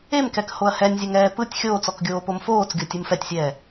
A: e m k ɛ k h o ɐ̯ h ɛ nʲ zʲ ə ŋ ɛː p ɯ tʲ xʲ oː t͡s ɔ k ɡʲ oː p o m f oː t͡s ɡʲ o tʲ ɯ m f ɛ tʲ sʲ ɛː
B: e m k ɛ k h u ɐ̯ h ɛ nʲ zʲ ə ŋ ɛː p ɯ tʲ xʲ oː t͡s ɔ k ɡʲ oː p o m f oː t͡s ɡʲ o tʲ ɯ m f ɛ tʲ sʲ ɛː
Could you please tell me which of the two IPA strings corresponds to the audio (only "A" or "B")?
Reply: A